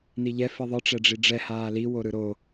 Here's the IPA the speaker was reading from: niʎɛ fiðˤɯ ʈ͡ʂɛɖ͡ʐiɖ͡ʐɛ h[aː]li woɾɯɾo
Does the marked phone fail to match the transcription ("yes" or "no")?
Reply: no